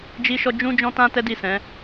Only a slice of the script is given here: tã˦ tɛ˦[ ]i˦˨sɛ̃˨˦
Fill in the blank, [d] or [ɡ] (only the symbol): d